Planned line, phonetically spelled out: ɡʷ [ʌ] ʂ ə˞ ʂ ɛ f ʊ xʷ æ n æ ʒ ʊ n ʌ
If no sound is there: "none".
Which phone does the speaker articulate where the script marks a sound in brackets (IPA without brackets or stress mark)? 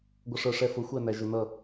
ʌ